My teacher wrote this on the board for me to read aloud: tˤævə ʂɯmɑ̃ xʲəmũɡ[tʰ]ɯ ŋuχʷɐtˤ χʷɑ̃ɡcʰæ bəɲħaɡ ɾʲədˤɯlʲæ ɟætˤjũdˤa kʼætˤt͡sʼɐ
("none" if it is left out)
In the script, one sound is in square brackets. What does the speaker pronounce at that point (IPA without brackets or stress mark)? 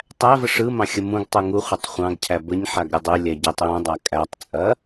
tˤ